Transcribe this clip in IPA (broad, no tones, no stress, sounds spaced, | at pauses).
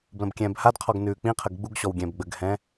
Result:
b l ə̃ b kʲ ɛ̃ː b h a d qʰ ɔ ɡ n ʉː k͡p ĩ qʰ ə ɡ ɡ͡b u ɡ ɕ ɔ w ɡʲ ɛ̃ː b ɡ͡b ə ɡ h ɛ̃